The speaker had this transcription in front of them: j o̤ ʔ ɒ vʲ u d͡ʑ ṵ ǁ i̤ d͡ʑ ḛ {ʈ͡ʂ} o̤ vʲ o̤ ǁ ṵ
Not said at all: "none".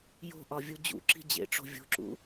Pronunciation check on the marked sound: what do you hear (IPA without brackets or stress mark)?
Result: ʈ͡ʂ